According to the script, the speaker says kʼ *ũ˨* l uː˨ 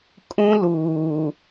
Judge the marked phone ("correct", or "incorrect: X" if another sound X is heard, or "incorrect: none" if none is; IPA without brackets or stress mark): incorrect: ũ˦